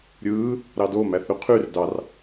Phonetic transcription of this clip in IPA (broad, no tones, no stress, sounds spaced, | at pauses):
ɾʲ ɯː | ɾ ɑ d o m æ θ ɾ y qʰ y r d ɑ r